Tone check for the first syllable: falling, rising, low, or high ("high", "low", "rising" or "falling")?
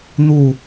falling